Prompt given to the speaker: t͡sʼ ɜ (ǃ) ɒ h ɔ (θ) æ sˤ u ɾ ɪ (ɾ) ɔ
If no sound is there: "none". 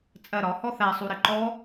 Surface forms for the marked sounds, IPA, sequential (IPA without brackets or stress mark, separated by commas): ɾ, θ, ǃ